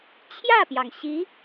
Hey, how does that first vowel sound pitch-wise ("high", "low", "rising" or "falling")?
falling